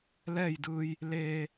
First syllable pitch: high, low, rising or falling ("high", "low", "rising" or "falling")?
falling